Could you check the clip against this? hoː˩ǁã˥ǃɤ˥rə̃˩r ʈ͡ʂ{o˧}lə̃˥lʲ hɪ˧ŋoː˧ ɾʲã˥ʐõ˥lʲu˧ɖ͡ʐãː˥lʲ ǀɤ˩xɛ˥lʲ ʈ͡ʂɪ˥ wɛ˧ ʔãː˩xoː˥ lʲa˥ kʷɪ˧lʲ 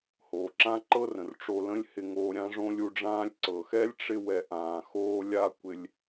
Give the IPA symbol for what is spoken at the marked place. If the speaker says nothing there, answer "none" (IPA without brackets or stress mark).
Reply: o˧